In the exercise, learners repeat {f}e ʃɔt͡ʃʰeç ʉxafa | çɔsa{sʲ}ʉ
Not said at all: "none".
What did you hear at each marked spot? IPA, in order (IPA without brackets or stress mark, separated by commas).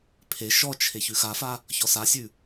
pʰ, sʲ